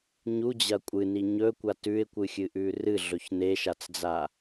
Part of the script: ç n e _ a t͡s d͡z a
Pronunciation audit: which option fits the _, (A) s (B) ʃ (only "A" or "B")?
B